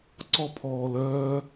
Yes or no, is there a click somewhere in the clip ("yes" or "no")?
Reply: yes